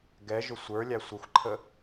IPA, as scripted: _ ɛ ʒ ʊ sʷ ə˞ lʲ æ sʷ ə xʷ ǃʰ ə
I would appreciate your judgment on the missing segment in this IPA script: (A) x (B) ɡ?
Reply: B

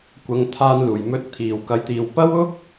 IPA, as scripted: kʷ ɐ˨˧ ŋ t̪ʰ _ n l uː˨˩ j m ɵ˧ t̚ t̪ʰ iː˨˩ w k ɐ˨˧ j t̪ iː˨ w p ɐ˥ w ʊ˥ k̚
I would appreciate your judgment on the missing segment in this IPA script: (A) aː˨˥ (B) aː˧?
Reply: B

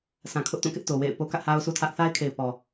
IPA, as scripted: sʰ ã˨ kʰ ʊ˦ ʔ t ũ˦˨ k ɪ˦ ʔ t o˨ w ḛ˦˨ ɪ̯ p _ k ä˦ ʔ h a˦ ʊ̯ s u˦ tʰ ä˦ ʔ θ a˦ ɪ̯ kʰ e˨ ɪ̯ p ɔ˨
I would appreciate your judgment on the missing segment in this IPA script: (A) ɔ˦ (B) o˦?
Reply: B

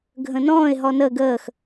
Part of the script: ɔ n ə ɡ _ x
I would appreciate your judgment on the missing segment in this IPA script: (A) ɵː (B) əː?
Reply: B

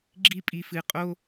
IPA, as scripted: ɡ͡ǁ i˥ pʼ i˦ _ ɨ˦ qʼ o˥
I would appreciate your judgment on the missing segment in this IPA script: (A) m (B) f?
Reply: B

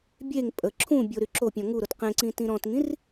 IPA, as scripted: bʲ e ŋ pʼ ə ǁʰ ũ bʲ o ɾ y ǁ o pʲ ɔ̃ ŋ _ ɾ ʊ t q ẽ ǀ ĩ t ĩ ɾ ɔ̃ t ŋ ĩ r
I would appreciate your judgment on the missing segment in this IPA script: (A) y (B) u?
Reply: B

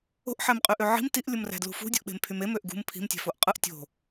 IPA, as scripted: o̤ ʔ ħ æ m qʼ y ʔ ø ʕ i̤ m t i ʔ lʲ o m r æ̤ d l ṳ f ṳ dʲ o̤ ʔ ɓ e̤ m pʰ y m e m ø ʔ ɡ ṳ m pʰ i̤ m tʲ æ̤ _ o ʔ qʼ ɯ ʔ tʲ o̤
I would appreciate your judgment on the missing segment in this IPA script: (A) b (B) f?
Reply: B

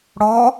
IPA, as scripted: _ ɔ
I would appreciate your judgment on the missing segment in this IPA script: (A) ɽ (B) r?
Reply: A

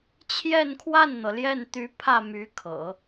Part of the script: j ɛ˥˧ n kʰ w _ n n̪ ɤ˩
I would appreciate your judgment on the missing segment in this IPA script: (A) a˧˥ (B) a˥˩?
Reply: B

